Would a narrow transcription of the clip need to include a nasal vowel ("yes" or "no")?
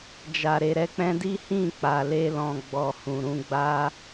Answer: yes